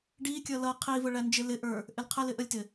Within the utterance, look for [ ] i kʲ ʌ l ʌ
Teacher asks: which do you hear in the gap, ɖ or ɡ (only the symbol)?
ɖ